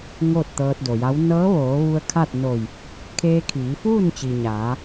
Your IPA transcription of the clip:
ŋ oː˥˨ t̚ t̪ ɤː˧ t̚ d o˩ j a˧˥ w n ɤː˧˥ ʋ oː˩˧ ʋ u˧ ə̯ kʰ a˥˨ t̚ n o˧˩ j | kʰ eː˧ kʰ iː˩˧ f uː˥˨ n t͡ɕ i˩ ɲ aː˩˧

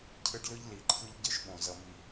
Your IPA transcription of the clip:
cʰ ɯ˦ ɖ l ɯ˦ ʎ l i˨ ǃʰ ɯ˦ ʎ ɟ ɯ˦ ʃ ɓ õ˨ z ʌ˨ m i˨

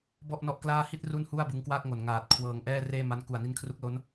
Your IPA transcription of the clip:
b ɔ˥˩ ʔ n ɔ˦˥ ʔ k l aː˥˩ h i˥˩ t̚ r u˥˩ n h u˥˩ a̯ b ɯ˧ ŋ k w aː˥˩ k̚ ŋ o˨˩ n ŋ aː˨˩ t̚ kʰ w ɤː˧ ŋ ʔ ɛː˥˩ r eː˥˩ m a˦˥ n k u˨˩ a̯ n i˦˥ n kʰ r u˦˥ k̚ l o˦˥ n

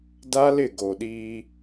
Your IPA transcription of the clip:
d a˦ l ɪ˦˨ ɡ o˨ ɗ iː˦

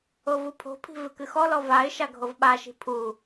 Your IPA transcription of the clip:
o v u pʰ o̤ pʰ i̤ v ɨ k ɨ x ɔ l ɔ v a ɪ̯ ʃ a ɡʱ o v ɓ a ʃ i̤ pʰ u

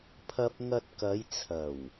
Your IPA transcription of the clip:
pʰ ɐ˥ p̚ ŋ ɐ˧ t̚ k ɐ˨˧ j t͡sʰ ɐ˨˩ w

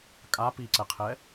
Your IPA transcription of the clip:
kʼ a p i ǀ ɛ qʰ ɛ

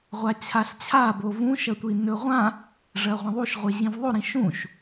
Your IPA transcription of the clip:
ʁʷ a t͡ɕʰ a ɬ t͡ɕʰ a b o v ũ ʃ ɐ tʷ i n ɵ ʁʷ ã | ʐ ɐ ʁʷ ɐ̃ ðˤ u ʃ ʁʷ e ʑ ĩ v ðˤ o ɾ ĩ ʃ ũ ʃ

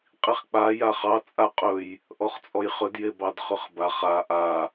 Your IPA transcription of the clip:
qʼ i χ k͡p a j a χ ɑ t͡sʼ a qʼ ɵ j | ʔ ɔ χ t͡sʼ ɔ j χ ɵ d j e b ɑ d χ ɵ χ b a χ a ʔ a

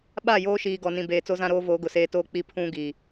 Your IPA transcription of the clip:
ɓ a˦˨ j oː˦ ʃ iː˨ ɡ ɔ˨ n ĩ˨ b eː˨ t͡s o˦ z ã˦ ɾ oː˦ v oː˨˦ ɡ ʊ˨ s eː˦ t oː˦ k͡p i˦ pʰ ũ˦ ɡ i˨

